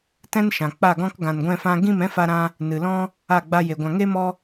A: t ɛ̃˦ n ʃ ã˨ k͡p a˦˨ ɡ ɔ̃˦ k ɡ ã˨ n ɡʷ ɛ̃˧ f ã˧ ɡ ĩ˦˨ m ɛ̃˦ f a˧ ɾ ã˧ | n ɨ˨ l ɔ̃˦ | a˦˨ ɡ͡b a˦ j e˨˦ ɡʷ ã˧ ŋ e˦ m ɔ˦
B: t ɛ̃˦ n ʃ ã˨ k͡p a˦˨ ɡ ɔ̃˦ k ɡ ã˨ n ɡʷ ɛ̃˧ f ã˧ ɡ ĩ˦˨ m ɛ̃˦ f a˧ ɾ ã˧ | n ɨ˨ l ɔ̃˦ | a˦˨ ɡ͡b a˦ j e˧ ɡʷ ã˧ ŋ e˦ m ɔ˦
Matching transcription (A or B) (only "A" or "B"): B